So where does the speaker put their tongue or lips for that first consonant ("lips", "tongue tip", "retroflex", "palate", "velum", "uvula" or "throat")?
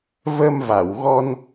lips